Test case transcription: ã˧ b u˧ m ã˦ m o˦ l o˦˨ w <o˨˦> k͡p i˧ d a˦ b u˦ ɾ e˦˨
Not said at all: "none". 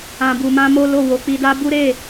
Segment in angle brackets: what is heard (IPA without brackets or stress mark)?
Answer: o˨˦